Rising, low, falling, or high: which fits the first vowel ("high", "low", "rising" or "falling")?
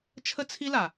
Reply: high